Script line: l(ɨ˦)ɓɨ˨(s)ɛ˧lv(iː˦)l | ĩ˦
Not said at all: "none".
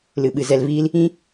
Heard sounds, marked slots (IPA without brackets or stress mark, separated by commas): ɨ˨, z, iː˦